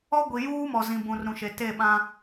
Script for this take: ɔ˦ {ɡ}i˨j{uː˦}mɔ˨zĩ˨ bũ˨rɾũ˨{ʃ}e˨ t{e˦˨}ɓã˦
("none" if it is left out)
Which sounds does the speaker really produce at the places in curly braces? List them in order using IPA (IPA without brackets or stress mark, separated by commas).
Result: ɡʷ, uː˦, ʃ, e˦˨